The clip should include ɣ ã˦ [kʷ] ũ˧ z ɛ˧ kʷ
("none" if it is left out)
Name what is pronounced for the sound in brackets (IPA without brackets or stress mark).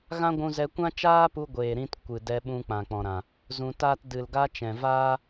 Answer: ɡʷ